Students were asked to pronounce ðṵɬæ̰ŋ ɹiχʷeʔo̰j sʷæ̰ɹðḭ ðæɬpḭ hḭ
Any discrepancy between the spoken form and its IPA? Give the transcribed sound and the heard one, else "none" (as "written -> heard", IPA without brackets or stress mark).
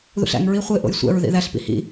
none